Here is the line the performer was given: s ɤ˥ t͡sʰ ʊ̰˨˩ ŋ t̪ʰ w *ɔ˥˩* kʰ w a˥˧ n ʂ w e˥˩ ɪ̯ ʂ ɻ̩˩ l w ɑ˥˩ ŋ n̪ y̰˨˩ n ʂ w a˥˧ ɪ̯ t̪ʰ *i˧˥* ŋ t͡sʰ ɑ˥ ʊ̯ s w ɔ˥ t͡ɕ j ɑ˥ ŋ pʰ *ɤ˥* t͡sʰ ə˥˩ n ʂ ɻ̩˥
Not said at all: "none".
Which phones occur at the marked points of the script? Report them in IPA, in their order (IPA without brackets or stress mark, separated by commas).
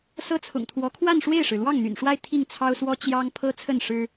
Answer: ɔ˧˥, i˥˩, ɤ˥